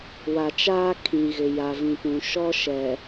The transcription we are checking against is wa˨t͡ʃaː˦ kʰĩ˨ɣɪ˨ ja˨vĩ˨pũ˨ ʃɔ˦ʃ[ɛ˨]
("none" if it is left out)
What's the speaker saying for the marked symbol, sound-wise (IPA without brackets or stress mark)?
ɛ˨